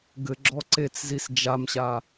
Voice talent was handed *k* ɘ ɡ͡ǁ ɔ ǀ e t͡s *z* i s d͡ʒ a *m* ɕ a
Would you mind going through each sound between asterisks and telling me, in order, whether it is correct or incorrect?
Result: incorrect: ɡ, correct, correct

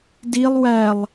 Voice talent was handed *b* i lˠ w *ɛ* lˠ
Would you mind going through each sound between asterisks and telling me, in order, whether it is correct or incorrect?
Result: incorrect: d, incorrect: æ

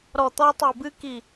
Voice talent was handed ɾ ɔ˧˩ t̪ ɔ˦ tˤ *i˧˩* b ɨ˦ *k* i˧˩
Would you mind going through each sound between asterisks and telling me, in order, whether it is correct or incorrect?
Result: correct, correct

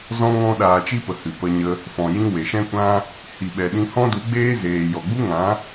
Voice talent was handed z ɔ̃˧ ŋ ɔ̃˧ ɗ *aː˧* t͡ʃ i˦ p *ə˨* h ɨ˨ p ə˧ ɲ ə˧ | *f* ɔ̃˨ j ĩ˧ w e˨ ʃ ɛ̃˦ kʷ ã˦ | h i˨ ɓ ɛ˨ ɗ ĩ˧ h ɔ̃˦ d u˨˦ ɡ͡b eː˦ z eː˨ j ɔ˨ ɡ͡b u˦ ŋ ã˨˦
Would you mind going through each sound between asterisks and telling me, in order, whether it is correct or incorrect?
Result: correct, correct, correct

